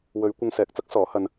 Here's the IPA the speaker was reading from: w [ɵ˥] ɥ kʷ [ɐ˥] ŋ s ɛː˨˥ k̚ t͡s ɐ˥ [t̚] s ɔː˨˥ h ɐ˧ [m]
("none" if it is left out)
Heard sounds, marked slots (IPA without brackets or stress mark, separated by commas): ɵ˨˧, ɐ˧, k̚, n